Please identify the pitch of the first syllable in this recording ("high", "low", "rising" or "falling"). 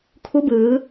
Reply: rising